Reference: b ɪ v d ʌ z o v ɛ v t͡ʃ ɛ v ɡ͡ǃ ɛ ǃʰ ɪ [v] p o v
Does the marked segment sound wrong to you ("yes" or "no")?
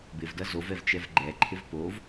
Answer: no